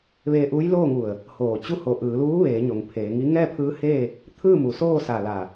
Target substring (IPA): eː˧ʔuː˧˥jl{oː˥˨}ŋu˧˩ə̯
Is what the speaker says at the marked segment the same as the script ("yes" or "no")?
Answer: yes